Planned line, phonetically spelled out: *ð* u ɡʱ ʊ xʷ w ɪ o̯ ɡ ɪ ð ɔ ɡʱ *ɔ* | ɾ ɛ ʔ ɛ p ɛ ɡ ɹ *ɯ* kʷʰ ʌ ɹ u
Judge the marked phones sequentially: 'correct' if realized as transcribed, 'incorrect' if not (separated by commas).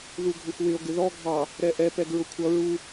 correct, incorrect, incorrect